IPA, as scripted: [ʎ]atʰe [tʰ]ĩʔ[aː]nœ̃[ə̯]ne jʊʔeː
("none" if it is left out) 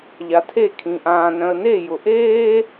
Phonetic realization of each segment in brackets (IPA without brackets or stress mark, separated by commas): ʎ, kʰ, ãː, ə̯